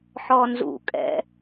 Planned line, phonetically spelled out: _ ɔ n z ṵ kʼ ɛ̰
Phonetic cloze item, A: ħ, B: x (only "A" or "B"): A